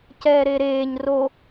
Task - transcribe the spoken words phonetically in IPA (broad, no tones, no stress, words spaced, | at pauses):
cɛːɾeɾeːɲ ro